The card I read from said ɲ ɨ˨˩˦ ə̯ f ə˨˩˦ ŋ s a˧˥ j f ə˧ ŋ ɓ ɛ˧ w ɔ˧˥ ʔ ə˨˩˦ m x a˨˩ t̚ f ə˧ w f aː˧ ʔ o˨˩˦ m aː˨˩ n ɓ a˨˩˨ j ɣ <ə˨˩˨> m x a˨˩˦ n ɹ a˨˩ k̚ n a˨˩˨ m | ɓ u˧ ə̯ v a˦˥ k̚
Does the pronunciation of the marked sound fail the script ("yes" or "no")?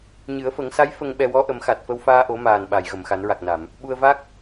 no